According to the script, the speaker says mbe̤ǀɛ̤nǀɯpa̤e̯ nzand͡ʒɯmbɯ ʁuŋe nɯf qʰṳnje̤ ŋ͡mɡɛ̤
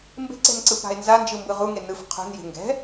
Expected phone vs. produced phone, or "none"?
ŋ͡m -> ŋ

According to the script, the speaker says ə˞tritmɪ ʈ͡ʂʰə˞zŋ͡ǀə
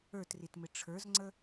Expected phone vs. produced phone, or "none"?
none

